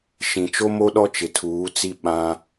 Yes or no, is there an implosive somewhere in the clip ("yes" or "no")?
yes